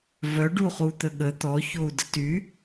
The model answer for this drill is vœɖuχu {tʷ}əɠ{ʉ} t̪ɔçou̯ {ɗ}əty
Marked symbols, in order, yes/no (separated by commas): no, no, no